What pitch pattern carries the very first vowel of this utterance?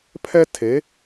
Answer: high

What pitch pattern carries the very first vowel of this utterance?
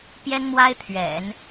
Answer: high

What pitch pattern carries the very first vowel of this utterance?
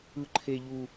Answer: high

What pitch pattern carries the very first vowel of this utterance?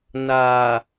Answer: low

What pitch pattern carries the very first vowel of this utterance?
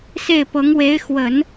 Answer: falling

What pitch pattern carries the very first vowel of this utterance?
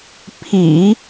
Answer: low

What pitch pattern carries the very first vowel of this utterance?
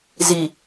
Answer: low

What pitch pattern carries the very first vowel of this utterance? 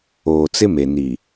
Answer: low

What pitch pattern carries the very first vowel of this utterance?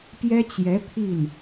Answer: high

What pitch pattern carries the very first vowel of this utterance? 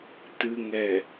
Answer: low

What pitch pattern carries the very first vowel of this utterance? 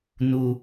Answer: low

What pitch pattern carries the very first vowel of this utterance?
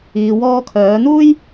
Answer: low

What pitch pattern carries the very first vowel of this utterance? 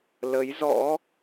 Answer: rising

